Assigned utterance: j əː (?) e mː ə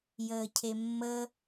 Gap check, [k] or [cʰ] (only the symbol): cʰ